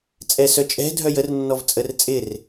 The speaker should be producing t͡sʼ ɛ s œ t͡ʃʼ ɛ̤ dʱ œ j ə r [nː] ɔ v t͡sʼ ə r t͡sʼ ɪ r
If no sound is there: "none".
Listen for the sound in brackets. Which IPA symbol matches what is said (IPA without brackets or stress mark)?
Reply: nː